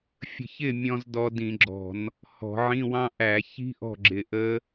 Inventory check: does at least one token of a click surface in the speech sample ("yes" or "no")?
yes